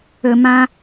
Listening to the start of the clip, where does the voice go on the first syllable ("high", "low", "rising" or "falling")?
low